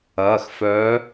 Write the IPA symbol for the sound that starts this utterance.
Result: ɐː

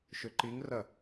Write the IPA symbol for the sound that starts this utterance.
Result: ʃ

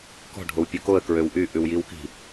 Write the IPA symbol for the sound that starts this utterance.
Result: k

